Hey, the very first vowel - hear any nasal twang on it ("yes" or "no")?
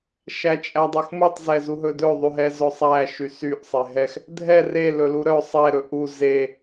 no